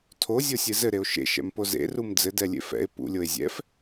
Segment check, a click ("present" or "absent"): absent